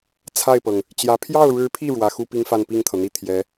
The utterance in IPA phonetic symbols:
t͡sʰ a˥˩ ɪ̯ p ɤ˩ ŋ | t͡ɕ j ä˧˥ pʰ j ɑ˥˩ ʊ̯ ɻ ɻ̩˧˥ pʰ i˥˩ ɻ w ä˧˥ x u˥ p i˥ ŋ f a˥˧ n p i˥˩ ŋ t̪ʰ ɤ˩ n̪ i˥˩ t̪ʰ j ɛ˧˥

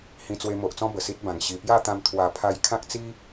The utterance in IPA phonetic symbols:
h ĩ˧ t͡s w e˧ m o˨ ʔ t͡s ɔ̃˦ b ə˨˩ s i˦ t̚ b ã˨˩ ŋ ɕ i˨˩ p j a˥˧ t̪ ã˧ m t̪ʰ w a˨˩ pʰ a˧ j kʰ ã˦ k̚ t͡s i˦

